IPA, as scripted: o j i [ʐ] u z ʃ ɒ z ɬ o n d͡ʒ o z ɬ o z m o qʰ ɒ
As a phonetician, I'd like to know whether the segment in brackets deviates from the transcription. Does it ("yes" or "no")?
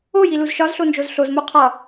yes